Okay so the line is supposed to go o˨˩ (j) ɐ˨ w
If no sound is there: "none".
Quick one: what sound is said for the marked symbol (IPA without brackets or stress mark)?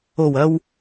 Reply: w